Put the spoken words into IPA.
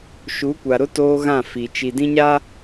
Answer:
ʃu˨˦kʷa˨ɾʊ˦ toː˦ɣã˦˨fi˨ t͡ʃi˨dĩ˦ɲa˦

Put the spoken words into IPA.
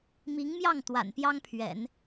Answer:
mi˧˥ŋmjɑ˥˩ŋ t̪wa̰˨˩npjɑ˥ŋpʰɥɛ̰˨˩˦n

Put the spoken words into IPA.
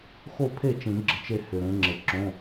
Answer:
xo˥˩pʰe˥˩t͡ʃĩ˨˩˦ ɡ͡ǁə˨˦t͡ʃe˥˩ hʏ˨ɾẽ˨˦ŋ͡ǁə˨˩˦ ǁõ˧˥˧

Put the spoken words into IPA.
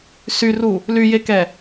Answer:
syru | lyjekɛ

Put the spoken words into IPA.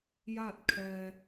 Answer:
ja˥˨t̚kʰɛː˧

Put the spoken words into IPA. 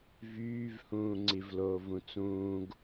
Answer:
vyːvhũː ŋ͡ǀivloːvũt͡sũːɡ

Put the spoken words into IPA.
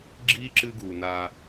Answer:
ɡ͡ǁi˦ ǁɨ˦ɡu˨na˦

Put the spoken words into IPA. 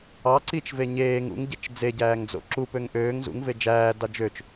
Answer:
ɑ ǀit͡ʃve ɲeːŋ ṵŋɟet͡ʃ d͡zeɟæːŋd͡zo̰ ǁupøŋ ʔøːŋ zṵŋve d͡ʒæːdɑ d͡ʒøt͡ʃ

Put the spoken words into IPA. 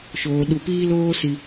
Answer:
ʃoː˨ ɗu˨piː˦loː˦ si˦

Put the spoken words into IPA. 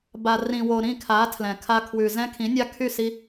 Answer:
ba˨rĩ˨wo˨ ɾĩ˦˨kʰa˨˦tʰlɛ̃˨kʰa˧ kʰwʉ˨zɛ̃˧kʰĩ˨˦ nʲa˧kʰy˦˨si˧

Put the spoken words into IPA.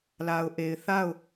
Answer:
la˨ʊ̯ʔe˨ɪ̯ θa˦˨ʊ̯

